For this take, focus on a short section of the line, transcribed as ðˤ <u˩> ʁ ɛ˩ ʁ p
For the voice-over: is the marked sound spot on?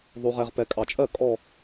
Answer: yes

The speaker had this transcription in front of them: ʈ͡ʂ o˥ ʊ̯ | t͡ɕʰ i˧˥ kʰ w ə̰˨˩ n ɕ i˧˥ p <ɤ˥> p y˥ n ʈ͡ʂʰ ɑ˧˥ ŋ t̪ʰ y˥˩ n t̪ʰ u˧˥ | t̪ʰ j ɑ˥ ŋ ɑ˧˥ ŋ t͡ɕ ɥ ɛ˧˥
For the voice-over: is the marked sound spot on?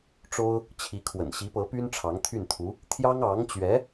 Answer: no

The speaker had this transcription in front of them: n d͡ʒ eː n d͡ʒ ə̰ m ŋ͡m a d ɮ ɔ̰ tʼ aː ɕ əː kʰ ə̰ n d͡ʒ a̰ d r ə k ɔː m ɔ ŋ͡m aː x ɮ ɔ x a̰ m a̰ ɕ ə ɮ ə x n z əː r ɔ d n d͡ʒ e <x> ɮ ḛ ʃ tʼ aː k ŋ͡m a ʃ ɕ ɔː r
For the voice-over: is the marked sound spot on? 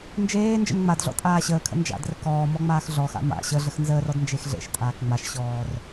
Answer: yes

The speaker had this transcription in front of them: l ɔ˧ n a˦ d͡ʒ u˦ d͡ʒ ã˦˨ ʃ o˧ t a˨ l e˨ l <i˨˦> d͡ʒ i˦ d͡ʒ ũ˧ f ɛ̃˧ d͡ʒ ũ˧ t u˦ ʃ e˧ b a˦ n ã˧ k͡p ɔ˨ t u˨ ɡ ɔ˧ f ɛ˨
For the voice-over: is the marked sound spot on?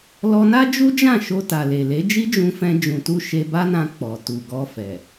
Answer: no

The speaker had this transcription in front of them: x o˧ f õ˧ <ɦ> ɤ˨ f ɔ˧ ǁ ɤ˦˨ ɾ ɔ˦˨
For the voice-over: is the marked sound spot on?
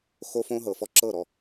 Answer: yes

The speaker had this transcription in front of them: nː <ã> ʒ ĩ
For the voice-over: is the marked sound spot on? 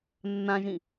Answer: yes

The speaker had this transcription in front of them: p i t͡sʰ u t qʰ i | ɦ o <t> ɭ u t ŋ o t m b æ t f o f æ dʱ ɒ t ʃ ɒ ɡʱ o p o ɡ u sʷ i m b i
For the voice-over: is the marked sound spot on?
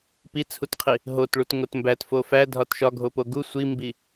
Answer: yes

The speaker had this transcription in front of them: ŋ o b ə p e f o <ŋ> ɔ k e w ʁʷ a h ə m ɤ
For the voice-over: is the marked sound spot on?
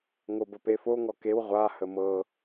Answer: yes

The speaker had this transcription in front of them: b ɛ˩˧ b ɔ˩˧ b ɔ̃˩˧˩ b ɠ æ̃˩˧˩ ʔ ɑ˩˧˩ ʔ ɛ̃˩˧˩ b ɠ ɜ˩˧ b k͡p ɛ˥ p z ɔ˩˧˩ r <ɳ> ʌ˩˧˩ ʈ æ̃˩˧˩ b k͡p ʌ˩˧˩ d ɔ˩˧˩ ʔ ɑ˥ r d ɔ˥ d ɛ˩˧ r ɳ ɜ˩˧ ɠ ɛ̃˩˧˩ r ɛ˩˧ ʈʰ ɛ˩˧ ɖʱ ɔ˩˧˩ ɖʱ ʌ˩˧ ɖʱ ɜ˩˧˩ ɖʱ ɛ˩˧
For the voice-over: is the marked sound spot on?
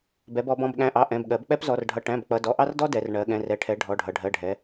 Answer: no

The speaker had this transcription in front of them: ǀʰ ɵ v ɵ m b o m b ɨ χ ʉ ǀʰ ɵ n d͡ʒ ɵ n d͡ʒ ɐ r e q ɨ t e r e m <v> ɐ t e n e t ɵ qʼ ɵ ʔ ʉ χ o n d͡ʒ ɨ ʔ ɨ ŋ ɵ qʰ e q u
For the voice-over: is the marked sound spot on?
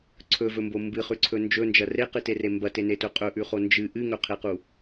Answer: no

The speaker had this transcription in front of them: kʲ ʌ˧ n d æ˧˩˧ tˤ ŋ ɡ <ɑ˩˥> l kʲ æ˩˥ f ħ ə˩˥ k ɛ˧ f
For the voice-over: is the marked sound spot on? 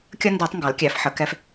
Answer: yes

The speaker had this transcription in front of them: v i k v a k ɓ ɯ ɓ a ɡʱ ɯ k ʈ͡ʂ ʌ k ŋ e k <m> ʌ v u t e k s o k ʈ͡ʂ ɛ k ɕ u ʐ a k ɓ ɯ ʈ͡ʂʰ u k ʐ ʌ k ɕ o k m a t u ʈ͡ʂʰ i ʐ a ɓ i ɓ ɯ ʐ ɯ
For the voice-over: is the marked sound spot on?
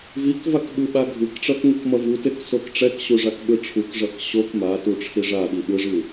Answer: yes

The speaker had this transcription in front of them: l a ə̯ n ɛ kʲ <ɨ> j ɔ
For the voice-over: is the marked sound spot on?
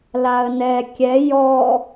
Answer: no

